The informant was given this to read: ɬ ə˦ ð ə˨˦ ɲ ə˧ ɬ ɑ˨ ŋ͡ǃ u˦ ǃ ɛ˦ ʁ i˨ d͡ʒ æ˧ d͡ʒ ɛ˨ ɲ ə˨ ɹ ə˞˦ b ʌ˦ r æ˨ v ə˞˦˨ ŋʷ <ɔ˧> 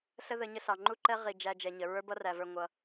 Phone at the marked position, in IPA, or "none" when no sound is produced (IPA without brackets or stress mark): ʌ˧